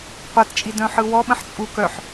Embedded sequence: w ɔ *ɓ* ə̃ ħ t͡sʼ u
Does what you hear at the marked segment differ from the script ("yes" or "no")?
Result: no